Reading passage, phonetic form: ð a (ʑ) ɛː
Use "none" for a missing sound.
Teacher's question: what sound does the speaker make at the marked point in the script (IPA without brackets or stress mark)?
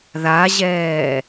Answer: ʑ